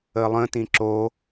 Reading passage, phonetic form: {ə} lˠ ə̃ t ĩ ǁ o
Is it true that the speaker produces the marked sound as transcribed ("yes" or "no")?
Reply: yes